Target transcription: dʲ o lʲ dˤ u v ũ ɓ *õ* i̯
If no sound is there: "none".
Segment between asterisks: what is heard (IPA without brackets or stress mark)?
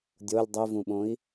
õ